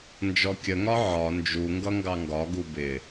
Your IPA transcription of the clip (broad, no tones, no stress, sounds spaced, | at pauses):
n d͡ʒ ɔ kʲ ə ŋ ɒ ʕ ɒ n d͡ʒ u ŋ ɡ ʌ ŋ ɡ ɑ ŋ ɡ ɒ ɡ u b ɪ